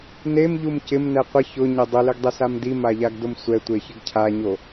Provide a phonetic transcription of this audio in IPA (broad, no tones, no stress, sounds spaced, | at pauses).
n e m ʎ u m c ɪ m n ɛ qʷ ɪ ç ʊ ɲ ɪ dˤ ʊ l ɪ ɡ dˤ e s a m d i m a ʎ a ɡ d ʊ m sʷ ɛ tʷ e ç ɪ ɡ cʰ a ɲ o